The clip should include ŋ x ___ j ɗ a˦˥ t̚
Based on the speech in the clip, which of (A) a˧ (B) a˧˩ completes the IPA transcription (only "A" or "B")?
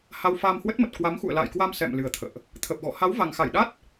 B